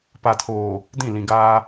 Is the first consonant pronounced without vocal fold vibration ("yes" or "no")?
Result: yes